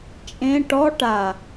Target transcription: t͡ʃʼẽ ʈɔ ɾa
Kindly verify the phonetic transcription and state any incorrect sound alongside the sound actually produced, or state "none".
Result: ɾ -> ʈ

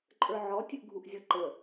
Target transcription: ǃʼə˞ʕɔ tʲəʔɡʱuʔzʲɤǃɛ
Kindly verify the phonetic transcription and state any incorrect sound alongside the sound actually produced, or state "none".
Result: ɛ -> ə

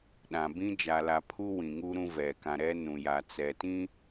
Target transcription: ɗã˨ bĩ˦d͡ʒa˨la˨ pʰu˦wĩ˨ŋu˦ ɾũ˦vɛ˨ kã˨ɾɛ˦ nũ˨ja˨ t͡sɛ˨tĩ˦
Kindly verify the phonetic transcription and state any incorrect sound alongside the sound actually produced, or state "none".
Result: none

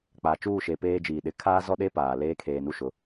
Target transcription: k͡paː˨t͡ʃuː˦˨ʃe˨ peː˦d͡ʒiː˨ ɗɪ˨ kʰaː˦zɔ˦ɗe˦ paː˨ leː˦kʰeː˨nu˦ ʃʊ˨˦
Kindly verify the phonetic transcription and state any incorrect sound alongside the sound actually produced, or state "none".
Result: none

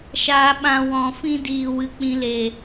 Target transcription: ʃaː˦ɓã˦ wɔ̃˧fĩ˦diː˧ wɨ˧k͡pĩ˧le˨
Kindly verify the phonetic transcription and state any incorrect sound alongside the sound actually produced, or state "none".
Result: none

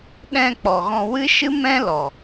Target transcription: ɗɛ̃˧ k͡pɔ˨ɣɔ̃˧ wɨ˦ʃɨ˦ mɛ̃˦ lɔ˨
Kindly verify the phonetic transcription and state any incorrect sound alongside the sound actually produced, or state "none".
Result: none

